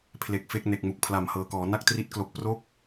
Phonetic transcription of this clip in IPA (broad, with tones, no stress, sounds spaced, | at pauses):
pʰ l e˨˩ k̚ f e˥˩ k̚ n e˨˩ k̚ m u˨˩ k̚ pʰ l a˨˩ m h ɤː˨˩ k ɔː˩˦ n a˥˩ k̚ t r i˦˥ t̚ k l o˨˩ k̚ p r o˦˥ k̚